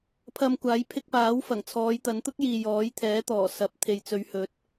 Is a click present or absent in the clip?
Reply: absent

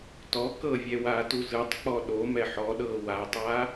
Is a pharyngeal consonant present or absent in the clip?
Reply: present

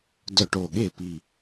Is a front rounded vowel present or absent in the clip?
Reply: present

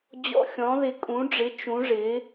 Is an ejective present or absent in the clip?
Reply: present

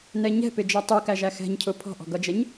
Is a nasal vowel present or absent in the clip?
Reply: absent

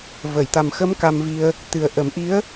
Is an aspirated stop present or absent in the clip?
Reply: absent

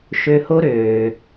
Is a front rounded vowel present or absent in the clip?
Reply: present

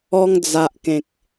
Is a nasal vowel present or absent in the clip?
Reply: present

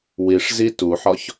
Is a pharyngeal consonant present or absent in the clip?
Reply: present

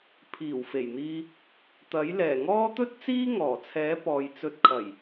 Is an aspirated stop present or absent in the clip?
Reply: present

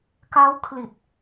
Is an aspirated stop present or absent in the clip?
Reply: present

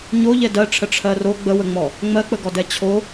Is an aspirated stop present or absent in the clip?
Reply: present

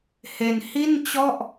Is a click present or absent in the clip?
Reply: absent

